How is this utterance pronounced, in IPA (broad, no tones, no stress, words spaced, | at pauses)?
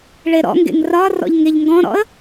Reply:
ɭeɾɔ̰ŋɡḛŋ rɒ rɔ̰ʎŋeʎŋɡɔ̃ɾɔ̰ə̯